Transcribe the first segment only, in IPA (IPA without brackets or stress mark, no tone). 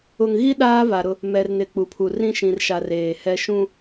ʊ